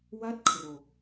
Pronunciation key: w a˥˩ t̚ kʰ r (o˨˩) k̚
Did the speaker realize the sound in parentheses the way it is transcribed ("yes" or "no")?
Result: yes